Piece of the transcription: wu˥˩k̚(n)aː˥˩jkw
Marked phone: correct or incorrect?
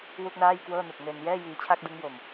correct